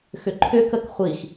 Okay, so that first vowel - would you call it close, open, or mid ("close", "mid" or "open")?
close